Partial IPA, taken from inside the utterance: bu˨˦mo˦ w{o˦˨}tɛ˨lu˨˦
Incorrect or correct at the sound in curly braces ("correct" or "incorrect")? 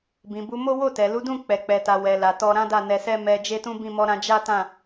correct